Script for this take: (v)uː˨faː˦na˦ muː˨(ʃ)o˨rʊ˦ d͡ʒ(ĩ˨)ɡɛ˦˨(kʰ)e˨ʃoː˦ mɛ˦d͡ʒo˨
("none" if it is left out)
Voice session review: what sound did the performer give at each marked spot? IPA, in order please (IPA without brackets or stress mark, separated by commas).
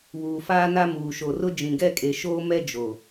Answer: β, ʃ, ĩ˨, kʼ